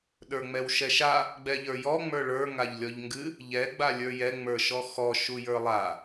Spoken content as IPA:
ɗ ə˞ ŋ͡m ɛ w ʃ ɛ ʃ a | ɡ͡b ɛ ʎ ə˞ j ɔ ŋ͡m ə˞ ɭ ə˞ ŋ a ʎ lʲ ɔ ʎ ŋ ɡ ɨ | ʎ ɛ ɡ͡b a lʲ ə˞ j ɛ ŋ͡m ə˞ ʃ ɔ x ɔ ʃ u j ə˞ lˠ a

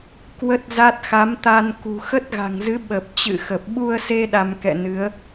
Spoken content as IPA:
k w ə˦˥ t̚ z a˦˥ t̚ x a˨˦ m t̪ a˧ n k ṳ˨˩ x ə˦˥ t̚ ɣ a̤˨˩ ŋ z ɨ˨˦ ɓ ə˨˩ p̚ t͡ɕ ɨ̰˧˨ x ə˨˩ p̚ ɓ u˧ ə̯ s e˧ ɗ a˧ m k ɛ̰˧˨ n ɨ˨˦ ə̯

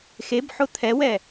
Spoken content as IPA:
x e b ħ ʊ t̪ʰ ɛ w ɛ

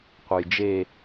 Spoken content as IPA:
qʷ ɯ j d͡ʒ e

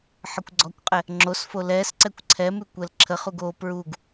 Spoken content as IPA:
ħ ə kʷ ɡ͡ǀ ɔ kʷ qʼ ɛ | ŋ͡ǁ o s f o l ɛ s ǀ ɛ kʷ ǀʰ ɛ m ʉ kʷ ɛ l ǁʰ ə χ u ɡ o p ɹ u ɡ

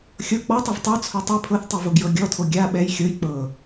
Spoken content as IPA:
xʲ ɤ k͡p ɔ tˤ i v tˤ œ t͡sʰ o tˤ i pʰ ɤ θ tˤ i v o ɡ j ɤ ɡʲ ɔ tʰ o ɡʲ a ɓ ɛ j xʲ ɤ j k͡p ɤ

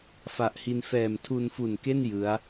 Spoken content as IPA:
f a˨˩ ʔ h i˧ n f ɛː˨˩ m tʰ u˧ n f u˨˩ n k e˥˩ n j ɯ˦˥ a̯

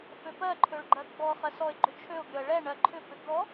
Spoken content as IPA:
f ø p ɜ ǃʰ ø ɭ ɡ͡ǃ ɜ ɡ͡b ɔ χ ɜ s ɔ ɪ̯ ɡ͡ǃ ʏ t͡ʃʰ ø ʊ̯ ɡ ʏ ə̯ ɭ ɛ ɳ ɜ ǃʰ ʏ p ʏ ɡ ɔ

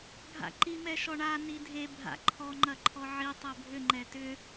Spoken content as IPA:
ɡʱ a̰ ǃ i m ɛ ʃ ɔ ɳ a n i dʱ e bʱ a̰ ǃʰ ɔ ŋ͡ǃ ɐ ǃʰ ɔ ʕ i tˤ ɛ bʱ ʏ ŋ͡ǃ ɛ t ʏ

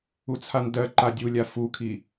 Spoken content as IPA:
u t͡sʰ a n d ɜ ǃ a dʲ u lʲ a f u kʰ i

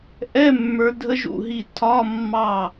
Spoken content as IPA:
ʔ ɛ˧˥˧ mː ə˞˧˥ dʱ ə˧˥ ʒ ṵ˧˩ ɦ i˧˩ tʰ ɒ˧˥˧ mː ɑ˧˩

